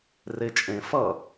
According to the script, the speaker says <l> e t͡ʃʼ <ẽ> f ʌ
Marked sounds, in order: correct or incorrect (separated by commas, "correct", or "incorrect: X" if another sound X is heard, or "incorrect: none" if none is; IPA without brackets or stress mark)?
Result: incorrect: r, correct